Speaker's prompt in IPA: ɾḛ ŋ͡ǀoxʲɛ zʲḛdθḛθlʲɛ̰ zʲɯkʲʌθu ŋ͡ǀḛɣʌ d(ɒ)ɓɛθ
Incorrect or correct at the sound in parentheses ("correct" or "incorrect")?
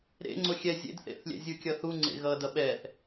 incorrect